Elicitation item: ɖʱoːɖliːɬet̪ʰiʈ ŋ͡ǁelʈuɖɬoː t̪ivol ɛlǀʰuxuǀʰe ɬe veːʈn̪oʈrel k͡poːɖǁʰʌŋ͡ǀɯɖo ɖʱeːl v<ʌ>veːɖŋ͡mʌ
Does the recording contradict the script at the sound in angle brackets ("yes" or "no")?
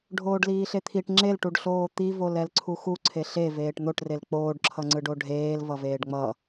no